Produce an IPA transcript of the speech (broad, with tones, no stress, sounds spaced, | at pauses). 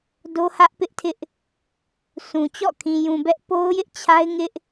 d o˦ h ä˦ ʔ p ɪ˦ ʔ tʰ ɪ˦ ʔ | sʰ ũ˨ t͡ɕ ɔ̰˦˨ kʰ ĩ˨ j ũ˨ b ɛ˦ ʔ p o˦ ʊ̯ j ɪ˦ ʔ t͡ɕʰ a˦ ɪ̯ ŋ ɪ˦ ʔ